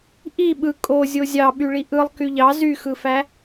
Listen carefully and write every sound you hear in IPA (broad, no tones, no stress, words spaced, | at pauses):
ʔi ɓɯ kʼo zʲozʲɑ ɓyɭiʔɯlˠ kyʎɑ zyxɯfæ